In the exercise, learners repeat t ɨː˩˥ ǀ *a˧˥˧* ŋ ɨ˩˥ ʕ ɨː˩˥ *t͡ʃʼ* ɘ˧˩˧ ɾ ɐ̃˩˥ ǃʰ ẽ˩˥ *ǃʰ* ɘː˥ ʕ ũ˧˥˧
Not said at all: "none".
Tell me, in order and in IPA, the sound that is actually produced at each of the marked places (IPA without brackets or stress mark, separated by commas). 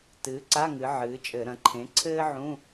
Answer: a˧˥˧, t͡ʃʼ, ǀʰ